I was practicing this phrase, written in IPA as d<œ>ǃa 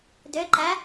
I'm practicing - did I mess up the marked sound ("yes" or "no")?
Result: no